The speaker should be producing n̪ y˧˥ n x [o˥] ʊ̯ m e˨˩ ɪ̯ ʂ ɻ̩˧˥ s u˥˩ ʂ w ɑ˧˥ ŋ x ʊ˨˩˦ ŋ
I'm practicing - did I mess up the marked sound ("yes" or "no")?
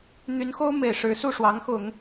no